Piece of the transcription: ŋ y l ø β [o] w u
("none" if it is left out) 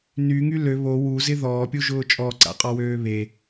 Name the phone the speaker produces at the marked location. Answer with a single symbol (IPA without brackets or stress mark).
o